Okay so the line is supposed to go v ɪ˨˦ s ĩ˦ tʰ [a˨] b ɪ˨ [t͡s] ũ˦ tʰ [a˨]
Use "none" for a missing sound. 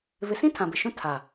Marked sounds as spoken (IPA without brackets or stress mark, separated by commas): ã˨, ʃ, a˨